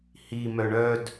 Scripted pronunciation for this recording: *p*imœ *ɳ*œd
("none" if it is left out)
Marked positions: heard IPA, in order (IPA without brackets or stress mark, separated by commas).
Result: h, ɳ